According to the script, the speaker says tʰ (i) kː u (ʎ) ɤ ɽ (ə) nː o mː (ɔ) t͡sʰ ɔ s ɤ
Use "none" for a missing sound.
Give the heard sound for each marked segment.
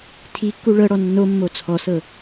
i, ɭ, ɔ, o

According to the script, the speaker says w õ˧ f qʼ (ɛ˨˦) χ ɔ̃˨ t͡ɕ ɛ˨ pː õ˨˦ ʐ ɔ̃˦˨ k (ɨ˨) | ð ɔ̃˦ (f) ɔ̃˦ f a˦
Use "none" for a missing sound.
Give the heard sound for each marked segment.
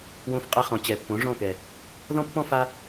ɛ˧, ɛ˨, pː

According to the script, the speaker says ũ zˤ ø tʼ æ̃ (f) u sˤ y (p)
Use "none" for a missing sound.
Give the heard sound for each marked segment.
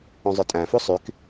f, k

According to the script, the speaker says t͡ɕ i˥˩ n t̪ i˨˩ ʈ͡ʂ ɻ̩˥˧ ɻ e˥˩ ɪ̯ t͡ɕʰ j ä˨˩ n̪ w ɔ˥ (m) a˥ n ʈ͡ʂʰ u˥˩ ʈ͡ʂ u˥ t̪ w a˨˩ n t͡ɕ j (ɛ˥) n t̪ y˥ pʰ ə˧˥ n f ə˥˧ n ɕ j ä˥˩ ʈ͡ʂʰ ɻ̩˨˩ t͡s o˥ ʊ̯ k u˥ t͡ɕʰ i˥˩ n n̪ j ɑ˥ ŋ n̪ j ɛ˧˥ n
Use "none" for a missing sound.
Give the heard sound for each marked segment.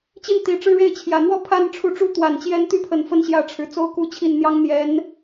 pʰ, ɛ˥

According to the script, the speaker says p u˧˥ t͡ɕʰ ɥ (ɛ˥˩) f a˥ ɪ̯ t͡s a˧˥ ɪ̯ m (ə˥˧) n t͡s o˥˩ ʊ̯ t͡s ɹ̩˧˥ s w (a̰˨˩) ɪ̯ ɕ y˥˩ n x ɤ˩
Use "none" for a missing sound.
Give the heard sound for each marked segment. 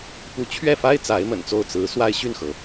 ɛ˥˩, ə̰˨˩, a˥

